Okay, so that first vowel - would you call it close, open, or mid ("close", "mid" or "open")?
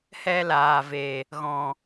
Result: mid